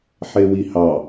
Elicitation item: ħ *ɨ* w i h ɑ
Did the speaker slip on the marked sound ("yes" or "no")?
yes